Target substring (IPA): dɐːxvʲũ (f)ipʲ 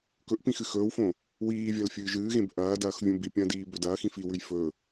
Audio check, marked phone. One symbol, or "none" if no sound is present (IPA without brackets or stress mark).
b